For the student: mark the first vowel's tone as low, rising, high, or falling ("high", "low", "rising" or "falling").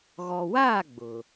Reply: low